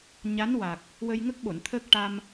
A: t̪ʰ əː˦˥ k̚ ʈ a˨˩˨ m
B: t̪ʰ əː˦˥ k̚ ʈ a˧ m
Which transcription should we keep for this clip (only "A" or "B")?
B